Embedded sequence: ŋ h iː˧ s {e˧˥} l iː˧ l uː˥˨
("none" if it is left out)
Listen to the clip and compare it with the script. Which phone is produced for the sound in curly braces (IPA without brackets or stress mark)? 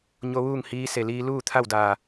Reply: e˩